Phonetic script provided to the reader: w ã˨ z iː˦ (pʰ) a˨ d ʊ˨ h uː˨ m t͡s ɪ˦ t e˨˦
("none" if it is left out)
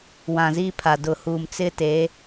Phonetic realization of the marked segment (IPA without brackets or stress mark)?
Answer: pʰ